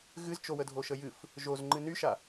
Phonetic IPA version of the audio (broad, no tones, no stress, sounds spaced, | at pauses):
ɣ ɨ z t͡ʃ o w ə dʱ o ʃ ə j ɨ f | ʒ o z ŋ͡ǃ ɨ n y ʃ a